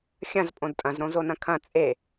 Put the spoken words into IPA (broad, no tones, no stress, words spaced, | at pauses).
xʲɐ̃z pʼõdtʼɐ̃zɾõ zonɐ̃kʰɐ̃ t͡sʼe